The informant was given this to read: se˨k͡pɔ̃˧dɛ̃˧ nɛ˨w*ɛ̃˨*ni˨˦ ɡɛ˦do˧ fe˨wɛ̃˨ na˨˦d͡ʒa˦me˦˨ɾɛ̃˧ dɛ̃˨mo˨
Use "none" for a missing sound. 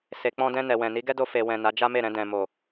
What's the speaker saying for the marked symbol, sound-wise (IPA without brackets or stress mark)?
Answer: ɛ̃˨